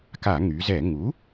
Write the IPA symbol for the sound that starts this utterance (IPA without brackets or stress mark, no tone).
k